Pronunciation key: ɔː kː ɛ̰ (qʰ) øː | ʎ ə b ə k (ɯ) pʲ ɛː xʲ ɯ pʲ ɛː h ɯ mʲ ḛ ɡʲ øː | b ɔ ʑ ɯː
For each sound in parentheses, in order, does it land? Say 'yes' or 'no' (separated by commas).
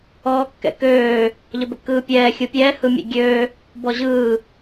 no, no